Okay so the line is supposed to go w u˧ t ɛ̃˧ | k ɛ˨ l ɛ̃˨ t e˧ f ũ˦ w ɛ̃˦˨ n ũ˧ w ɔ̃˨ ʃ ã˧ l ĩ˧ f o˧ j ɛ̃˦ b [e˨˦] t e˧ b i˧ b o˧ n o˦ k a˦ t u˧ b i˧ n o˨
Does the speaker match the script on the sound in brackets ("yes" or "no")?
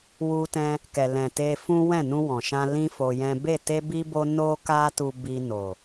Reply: no